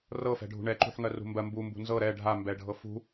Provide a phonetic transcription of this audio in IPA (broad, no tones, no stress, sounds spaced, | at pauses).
r ɤ f ɛ̤ ɖʱ ṳ ɳ ɛ ǃ ṳ ħ ŋ ɜ r ṳ m b ɜ m b u m b ṳ n z ɤ ɾ ɛ ɖʱ a m b ɛ ɖʱ ɤ f ṳ